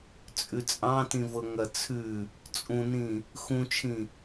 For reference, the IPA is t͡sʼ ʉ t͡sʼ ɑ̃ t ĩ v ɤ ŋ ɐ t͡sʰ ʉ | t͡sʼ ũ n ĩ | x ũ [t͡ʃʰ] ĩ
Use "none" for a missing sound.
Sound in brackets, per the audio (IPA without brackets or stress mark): t͡ʃʰ